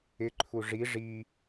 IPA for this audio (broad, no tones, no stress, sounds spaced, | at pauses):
ɪ ǃʰ u ʐ i ʐ i